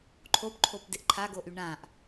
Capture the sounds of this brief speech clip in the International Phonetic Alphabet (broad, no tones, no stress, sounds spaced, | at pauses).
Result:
ǃʰ o p ǃʰ o p d ɪ ʔ ǃʰ a ɡ o ʔ y ɳ ã ʔ